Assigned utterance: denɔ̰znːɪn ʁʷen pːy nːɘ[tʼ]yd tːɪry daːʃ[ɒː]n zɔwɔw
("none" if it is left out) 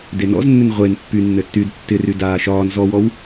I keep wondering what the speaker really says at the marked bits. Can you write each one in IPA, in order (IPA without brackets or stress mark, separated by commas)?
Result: tː, ɒː